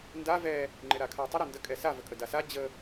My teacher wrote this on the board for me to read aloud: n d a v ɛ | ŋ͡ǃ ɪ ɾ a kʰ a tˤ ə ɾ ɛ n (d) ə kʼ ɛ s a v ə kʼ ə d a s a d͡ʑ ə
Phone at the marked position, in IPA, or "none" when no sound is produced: d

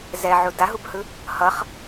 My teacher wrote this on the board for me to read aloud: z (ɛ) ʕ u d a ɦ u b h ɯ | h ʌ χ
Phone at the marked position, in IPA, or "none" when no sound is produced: ɛ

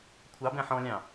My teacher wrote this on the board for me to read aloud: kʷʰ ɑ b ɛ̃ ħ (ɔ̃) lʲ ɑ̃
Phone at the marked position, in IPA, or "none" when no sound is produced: ɔ̃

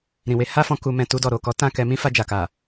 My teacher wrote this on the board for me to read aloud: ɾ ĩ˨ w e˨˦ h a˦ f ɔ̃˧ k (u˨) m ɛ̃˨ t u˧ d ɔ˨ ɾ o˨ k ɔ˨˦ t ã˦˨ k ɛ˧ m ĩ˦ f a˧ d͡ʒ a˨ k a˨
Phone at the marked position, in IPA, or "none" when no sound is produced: u˨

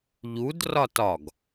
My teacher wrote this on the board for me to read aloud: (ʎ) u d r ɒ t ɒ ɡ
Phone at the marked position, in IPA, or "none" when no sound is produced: ʎ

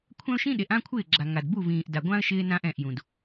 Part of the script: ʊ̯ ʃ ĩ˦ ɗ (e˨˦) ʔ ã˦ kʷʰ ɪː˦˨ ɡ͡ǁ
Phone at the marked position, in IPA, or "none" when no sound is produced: e˨˦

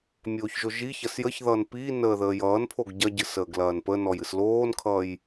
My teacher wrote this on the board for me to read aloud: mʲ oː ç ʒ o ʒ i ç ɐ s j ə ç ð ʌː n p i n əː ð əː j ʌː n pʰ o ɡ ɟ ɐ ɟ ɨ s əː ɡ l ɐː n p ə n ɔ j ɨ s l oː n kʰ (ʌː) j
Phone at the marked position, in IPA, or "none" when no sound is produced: ʌː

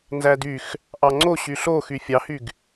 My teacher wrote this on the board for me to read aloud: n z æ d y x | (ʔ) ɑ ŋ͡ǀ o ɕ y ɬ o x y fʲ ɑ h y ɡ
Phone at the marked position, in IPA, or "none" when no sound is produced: ʔ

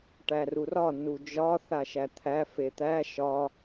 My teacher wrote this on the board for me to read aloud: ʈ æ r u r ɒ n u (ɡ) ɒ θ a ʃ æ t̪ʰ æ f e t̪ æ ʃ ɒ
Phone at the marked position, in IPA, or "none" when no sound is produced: d͡ʒ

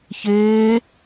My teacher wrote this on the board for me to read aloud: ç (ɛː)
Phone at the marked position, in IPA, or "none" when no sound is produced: eː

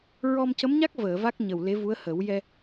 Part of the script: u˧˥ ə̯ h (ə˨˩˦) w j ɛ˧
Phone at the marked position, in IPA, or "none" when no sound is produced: ə˨˩˦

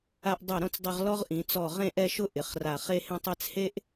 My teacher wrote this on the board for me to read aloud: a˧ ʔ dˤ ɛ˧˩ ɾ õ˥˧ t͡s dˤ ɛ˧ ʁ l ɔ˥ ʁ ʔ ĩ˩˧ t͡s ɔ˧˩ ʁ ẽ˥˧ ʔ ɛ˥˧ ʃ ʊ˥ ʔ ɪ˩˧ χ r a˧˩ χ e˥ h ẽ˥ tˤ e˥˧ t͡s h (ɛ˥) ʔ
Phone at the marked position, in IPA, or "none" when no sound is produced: e˥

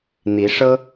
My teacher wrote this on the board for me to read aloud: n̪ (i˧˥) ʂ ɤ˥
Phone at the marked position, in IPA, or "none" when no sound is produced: i˧˥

